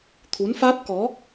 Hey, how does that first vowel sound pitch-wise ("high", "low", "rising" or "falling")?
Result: rising